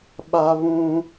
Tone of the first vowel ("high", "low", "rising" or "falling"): high